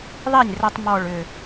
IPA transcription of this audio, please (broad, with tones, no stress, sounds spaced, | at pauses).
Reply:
ðˤ i˥˩ nʲ r ə˧ tˤ m ɔ˧˩ ɭ ʏ˧˩